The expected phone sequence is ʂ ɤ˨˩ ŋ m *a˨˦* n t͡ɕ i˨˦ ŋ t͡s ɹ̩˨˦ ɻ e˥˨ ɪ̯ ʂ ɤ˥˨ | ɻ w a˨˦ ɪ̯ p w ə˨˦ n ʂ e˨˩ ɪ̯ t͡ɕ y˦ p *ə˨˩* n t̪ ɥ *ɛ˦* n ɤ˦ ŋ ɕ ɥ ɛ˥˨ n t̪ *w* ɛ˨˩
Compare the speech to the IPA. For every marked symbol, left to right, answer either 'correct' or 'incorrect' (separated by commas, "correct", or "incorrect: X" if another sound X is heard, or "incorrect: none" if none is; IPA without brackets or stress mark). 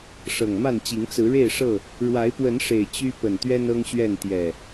incorrect: a˥˨, correct, correct, incorrect: j